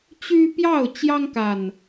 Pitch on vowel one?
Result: high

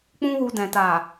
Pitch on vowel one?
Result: high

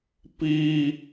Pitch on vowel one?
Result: high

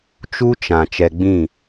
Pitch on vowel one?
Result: high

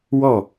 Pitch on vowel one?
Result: falling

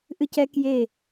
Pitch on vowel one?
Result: high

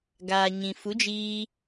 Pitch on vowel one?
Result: low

